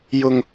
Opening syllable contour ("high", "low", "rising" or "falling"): high